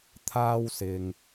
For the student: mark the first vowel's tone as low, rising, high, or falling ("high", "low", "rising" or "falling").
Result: high